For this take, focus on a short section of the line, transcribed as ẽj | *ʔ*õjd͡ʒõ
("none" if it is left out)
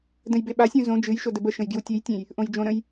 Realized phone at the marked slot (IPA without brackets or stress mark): ʔ